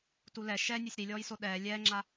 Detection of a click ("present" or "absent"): present